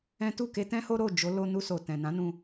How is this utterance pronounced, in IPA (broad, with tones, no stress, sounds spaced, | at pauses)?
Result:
ɛ̃˦ t u˦˨ k e˧ t ɛ̃˦ h o˦ ɾ o˦˨ d͡ʒ o˨˦ l o˧ n u˧ s o˨ t ɛ̃˨ n ã˨˦ n ũ˧